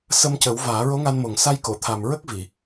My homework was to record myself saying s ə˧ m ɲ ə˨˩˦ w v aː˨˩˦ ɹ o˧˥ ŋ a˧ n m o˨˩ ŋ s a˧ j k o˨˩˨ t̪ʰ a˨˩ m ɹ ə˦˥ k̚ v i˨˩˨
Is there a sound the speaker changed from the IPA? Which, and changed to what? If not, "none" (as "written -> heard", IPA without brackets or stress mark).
ɲ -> c